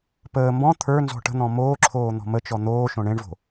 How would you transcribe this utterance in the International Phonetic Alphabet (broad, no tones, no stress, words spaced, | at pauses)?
pəː mbɔ̃ t̪ʰə˞nzɔ̤ ʈə̤n̪ɔ̃ moːǁʰoː n̪ɔ̤mət͡ʃɔ n̪oːʃõ ɳẽɳvo̤